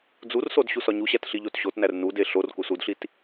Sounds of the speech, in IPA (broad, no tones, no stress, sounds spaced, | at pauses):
d͡z u r s o d ɕ u s ɒ ɲ u ɕ æ t ɬ i ʎ o t ɕ o t n æ r n u d e ɬ o r k u s u d ɬ i t